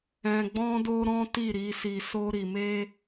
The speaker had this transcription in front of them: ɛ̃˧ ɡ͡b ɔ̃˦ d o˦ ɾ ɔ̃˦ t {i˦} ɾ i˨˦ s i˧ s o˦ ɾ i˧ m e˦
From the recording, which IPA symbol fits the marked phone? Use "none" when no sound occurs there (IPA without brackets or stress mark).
i˦˨